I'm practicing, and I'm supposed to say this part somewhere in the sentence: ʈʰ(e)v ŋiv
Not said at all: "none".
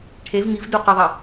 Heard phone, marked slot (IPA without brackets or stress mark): e